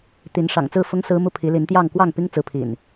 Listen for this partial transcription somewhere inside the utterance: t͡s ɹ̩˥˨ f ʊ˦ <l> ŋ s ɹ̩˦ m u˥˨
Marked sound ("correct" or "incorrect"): incorrect